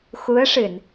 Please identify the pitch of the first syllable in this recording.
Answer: rising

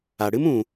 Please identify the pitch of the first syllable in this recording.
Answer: low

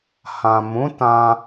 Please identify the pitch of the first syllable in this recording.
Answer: low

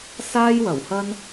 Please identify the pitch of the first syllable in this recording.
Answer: high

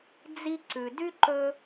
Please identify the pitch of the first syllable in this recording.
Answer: high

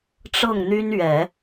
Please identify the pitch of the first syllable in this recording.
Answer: falling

